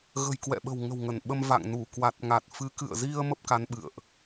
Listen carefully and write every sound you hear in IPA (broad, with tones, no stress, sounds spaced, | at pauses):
ɣ ə̤˨˩ j k w ɛ̰˧˨ ɓ ə̤˨˩ w ŋ ə̤˨˩ w ŋ ə˧˩ n ɓ ə˧ m v a̰˧˨ ŋ n u˧˩ k w a˨˩ t̚ ŋ a˨˩ t̚ f ɨ˨˦ k ɨ̰˧˨ ə̯ z i˧ ə̯ m ə˦˥ p̚ k a˨˦ n ɓ ɨ̰˧˨ ə̯ ʔ